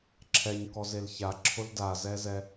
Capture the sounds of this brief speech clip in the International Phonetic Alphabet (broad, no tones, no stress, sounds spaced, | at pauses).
ǁʰ ɛ ɲ k ɔ z e l ç a ǁʰ ʊ l d a z ɛ z ɛ